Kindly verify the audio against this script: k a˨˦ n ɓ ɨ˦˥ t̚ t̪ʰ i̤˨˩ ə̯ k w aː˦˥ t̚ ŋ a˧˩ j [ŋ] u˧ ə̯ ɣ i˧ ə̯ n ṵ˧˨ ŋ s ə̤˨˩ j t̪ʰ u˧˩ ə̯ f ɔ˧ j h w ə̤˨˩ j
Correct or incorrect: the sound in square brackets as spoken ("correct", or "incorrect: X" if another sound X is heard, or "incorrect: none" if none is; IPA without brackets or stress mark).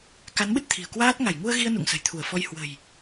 correct